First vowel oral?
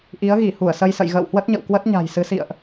yes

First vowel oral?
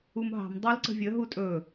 yes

